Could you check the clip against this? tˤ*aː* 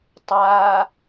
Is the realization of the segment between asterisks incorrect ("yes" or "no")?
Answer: no